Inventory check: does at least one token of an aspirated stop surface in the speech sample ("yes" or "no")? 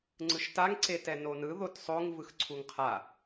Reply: yes